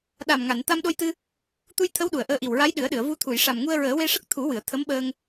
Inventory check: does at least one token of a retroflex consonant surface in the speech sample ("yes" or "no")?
yes